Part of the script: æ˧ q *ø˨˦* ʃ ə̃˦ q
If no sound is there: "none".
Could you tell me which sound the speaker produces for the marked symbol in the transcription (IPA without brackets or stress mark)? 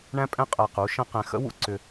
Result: u˨˦